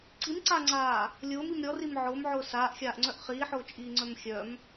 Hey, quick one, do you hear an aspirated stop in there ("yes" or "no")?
no